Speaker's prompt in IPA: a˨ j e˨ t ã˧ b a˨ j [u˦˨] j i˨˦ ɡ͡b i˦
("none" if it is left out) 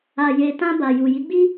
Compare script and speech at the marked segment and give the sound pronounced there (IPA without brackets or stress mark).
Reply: u˨